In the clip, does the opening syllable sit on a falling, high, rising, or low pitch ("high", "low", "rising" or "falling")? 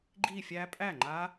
falling